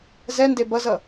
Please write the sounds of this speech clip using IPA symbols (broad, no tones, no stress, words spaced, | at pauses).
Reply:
zɛnde bʌzʌ